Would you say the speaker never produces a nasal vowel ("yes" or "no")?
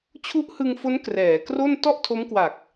yes